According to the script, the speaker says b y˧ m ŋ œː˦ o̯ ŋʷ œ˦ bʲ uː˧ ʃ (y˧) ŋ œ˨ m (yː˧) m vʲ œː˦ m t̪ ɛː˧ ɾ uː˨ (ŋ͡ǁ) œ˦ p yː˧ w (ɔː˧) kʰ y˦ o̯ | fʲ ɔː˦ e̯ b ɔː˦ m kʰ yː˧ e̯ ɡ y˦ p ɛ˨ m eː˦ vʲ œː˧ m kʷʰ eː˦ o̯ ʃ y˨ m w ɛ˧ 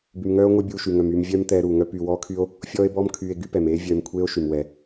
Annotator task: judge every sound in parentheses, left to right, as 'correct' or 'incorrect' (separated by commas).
incorrect, correct, incorrect, incorrect